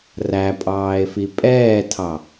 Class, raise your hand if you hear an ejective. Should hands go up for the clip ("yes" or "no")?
yes